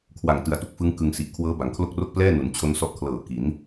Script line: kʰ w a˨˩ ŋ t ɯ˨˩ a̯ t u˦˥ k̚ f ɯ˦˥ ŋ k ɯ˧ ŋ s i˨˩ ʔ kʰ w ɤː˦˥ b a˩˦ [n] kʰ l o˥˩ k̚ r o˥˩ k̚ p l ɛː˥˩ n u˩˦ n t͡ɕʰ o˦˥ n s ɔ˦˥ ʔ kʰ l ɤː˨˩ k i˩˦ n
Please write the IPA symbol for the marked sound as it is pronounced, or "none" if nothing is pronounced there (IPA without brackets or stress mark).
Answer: ŋ